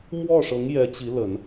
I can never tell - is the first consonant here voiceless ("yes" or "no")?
no